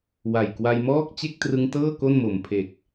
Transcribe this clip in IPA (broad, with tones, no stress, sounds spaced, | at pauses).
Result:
w a˨˩ j k w a˧ j m ɔː˥˩ k̚ t͡ɕ e˥˩ k̚ t r ɯ˧ ŋ t ɤː˥˩ k o˥˩ n m o˨˩ m pʰ e˨˩ k̚